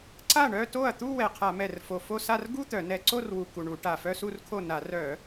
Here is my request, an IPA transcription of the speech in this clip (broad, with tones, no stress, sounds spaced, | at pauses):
ǀ a˥˩ ɳ œ˥˧ t o˥˩ ɐ̯ t̪ u˥˧ w ɛ˨˩ qʰ a˧˩˧ m ɛ˨˩ r f o˨˩ f o˥˧ s a˥˧ r ɡ u˥˧ t̪ œ˧˩˧ n ɛ˧˩˧ ǀ o˥˧ r w u˨˩ k u˨˩ ɳ u˧˩˧ ʈ a˨˩ f œ˥˧ s u˥˧ r kʰ o˥˩ n a˧˩˧ r œ˧˩˧